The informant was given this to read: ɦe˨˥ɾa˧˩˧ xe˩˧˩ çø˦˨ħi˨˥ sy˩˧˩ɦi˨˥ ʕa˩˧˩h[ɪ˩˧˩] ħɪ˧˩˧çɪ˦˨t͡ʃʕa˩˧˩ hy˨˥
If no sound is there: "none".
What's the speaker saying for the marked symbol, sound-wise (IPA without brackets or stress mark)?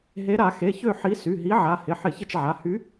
ɪ˩˧˩